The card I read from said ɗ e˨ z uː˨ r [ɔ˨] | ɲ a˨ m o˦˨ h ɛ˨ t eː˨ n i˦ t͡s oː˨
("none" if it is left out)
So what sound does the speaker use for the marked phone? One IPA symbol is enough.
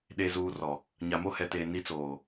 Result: ɔ˨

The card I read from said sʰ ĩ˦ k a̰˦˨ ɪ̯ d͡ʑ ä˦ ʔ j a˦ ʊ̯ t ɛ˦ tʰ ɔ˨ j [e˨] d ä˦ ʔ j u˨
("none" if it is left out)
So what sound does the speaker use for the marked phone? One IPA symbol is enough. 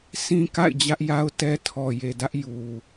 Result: e˨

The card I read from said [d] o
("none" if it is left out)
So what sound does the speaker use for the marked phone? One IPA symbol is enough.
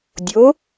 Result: dʲ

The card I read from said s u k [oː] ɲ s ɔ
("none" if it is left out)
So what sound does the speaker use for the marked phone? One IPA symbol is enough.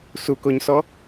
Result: o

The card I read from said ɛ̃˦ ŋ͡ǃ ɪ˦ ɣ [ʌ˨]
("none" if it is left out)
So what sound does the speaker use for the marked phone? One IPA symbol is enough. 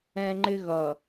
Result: ʌ˨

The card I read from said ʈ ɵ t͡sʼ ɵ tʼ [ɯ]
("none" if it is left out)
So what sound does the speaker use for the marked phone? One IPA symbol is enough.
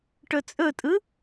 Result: ɯ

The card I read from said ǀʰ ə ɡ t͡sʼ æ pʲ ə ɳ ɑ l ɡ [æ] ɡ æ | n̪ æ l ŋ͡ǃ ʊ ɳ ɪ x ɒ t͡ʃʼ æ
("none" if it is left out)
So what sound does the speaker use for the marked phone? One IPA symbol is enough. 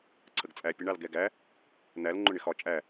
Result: ɛ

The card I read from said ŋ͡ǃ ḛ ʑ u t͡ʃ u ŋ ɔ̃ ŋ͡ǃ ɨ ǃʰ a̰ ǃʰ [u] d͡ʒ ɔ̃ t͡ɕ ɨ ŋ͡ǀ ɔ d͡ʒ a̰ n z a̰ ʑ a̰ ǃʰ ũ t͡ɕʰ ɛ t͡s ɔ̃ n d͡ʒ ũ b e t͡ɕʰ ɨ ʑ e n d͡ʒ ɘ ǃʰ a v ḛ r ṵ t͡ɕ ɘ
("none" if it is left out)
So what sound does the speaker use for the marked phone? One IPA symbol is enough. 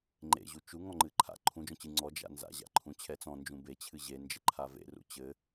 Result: ũ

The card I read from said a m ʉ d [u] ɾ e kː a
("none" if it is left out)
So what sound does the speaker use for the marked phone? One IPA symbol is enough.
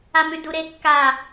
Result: u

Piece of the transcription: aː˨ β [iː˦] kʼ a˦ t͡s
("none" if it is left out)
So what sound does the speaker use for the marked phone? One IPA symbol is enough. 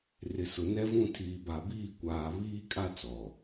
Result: iː˦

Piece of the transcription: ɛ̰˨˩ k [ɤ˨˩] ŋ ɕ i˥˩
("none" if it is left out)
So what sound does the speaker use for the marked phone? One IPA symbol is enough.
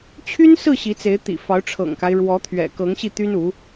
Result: ɤ˧˥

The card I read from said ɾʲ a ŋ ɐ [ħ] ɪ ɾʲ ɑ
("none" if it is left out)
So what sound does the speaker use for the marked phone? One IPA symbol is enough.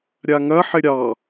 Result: ħ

